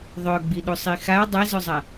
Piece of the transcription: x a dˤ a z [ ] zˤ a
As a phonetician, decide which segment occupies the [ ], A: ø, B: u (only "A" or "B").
A